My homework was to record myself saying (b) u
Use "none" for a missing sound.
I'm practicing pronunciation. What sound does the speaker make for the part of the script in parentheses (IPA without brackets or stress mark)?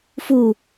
f